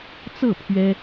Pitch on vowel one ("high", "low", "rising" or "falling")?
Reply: falling